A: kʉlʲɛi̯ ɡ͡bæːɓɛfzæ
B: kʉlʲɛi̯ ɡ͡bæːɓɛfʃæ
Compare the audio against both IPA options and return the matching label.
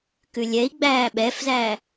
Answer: A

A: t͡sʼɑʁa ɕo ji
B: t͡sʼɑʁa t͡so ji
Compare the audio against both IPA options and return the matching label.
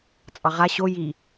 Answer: A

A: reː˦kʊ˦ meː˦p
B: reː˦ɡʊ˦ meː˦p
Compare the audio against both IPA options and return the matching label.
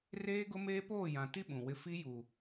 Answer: B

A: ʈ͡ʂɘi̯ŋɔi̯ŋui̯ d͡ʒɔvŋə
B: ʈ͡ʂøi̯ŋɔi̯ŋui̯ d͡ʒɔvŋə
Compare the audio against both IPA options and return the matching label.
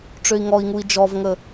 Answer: B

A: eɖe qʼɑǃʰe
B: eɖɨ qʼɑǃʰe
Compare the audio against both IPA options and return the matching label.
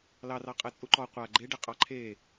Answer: A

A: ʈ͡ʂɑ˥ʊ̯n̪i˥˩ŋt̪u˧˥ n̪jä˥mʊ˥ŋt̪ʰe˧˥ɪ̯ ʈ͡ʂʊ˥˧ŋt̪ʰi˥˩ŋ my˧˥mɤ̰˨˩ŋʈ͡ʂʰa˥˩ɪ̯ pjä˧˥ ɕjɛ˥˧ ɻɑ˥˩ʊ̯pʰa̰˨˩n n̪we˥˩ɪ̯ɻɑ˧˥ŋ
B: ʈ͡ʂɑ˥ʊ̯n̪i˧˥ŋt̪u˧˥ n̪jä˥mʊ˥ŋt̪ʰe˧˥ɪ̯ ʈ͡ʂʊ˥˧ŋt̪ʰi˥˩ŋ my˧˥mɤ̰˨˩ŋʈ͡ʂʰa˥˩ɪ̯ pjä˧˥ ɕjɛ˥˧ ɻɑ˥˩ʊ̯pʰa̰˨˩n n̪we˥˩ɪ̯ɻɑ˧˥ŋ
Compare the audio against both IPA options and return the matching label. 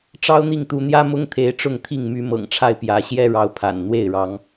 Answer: A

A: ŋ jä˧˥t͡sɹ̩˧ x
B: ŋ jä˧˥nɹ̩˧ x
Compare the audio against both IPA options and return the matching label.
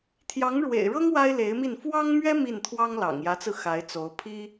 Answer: A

